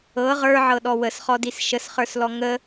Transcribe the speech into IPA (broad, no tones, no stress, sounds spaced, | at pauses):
ɤ ʁ ə˞ ʕ ɤ ɗ ɔ w ə s χ ɔ d i s ʃ ə s χ ə˞ s l ɔ ŋ ə